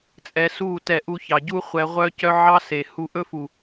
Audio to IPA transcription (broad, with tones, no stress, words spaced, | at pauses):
t͡sʼɛ˧su˦˨tɛ˧ ʔu˧çɑ˨ɟu˦ χʷɛ˧ ʁʷœ˧cœ˧ ʕɑ˦se˨ hu˧ʔɵ˦fu˨